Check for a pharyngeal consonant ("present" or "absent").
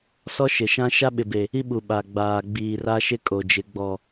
absent